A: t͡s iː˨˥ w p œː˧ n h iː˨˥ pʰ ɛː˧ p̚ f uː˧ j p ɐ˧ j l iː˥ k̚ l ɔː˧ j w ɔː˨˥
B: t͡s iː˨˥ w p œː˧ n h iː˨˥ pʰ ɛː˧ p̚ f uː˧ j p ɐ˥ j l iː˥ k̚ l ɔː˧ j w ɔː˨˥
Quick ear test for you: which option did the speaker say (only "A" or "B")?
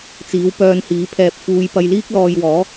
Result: A